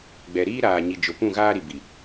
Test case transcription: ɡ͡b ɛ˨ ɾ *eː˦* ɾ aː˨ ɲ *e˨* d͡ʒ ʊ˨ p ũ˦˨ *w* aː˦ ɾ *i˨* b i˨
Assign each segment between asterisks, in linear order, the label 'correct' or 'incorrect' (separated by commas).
incorrect, incorrect, incorrect, correct